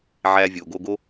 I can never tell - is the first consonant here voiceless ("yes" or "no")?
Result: no